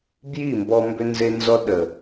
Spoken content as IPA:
b j i˦˨ m b ɔ˧ m b ʏ˦ n z e˦ n z ɔ˦ ɗ ə˨

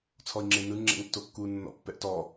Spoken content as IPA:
t͡sʰ ɔ i̯ ŋ͡ǁ e n ɯ ŋ͡ǁ ɛ̰ ŋ tː o kː u nː ɔ̰ pː ɛ ʔ t ɔ

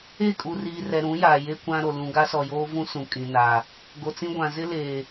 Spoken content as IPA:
e˦˨ kʼ u˨ r iː˨ r ɛ˨ ɾ ũ˨˦ j aː˨ j e˦ kʷ ã˦ ɾ o˨ l ũ˨ ɡ a˦ s ɔ˨ j oː˦ v ũ˦ s ũ˨ kʼ ĩ˨ n aː˨ | ɡ o˨ t͡s ĩ˦ ɡʷ ã˨ z ɪ˦ l eː˨

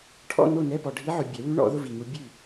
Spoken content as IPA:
ʈʰ ɔ̰˥˨ n o˥˨ n ɛ˧˥˧ p ɔ˨ ɖʱ i˧˥ ʕ ʊ˨ bʲ ɛ˨˩˦ w ʉ˧˥ ɳ ɔ̰˨˩˦ ð ʊ˧˥˧ v i˨ ŋ u˧˥ bʲ ʉ˥˨

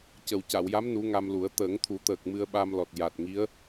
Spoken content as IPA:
c ə˨˩ w c a˨˩˨ w j a˧˥ m n u˧˥ ŋ a˧ m l u˨˩˦ ə̯ t̪ əː˨˩˦ ŋ t̪ʰ u˨˩˦ t̪ əː˨˩ k̚ m ɨ˧ ə̯ ɓ a˧ m l ɔ˨˩ t̚ j a˨˩ t̚ ŋ i˧˥ ə̯

